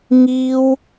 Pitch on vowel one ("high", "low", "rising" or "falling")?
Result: high